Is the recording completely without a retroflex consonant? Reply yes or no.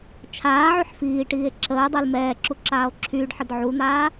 no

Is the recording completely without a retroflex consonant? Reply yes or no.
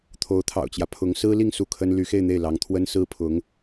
yes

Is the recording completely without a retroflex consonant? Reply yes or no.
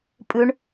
no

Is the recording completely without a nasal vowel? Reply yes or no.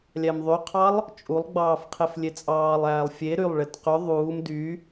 yes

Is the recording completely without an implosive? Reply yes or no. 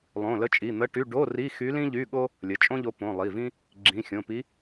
no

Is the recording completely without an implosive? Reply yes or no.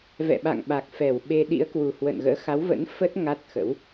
no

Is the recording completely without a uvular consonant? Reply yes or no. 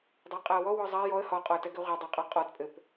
no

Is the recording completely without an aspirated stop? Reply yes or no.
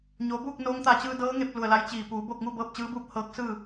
yes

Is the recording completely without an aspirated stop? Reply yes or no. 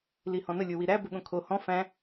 no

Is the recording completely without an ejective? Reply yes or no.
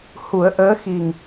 yes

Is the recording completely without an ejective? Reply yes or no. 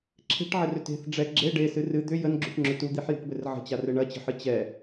yes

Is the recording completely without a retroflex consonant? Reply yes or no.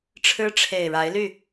no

